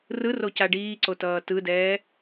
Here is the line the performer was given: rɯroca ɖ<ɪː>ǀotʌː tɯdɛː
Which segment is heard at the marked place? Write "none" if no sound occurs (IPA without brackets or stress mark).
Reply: iː